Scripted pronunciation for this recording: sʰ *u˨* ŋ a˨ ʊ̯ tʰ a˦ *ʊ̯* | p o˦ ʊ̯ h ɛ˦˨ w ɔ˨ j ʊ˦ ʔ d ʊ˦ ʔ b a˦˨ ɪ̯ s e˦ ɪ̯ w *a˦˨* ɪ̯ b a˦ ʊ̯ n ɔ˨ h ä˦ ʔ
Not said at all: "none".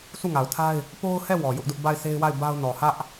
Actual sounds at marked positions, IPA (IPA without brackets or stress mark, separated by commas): u˦˨, ɪ̯, a˦˨